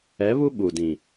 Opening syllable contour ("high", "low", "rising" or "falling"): rising